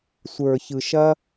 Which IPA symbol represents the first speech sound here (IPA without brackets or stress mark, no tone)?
sʷ